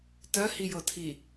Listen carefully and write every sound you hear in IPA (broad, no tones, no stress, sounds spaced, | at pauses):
t ɜ h i j ɤ tʰ i